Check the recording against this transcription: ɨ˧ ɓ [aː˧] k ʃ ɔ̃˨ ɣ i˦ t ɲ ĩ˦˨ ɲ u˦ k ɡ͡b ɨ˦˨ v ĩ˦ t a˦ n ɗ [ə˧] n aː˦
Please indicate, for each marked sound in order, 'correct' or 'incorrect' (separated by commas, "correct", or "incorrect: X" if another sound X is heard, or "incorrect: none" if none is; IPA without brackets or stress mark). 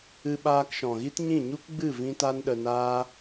correct, correct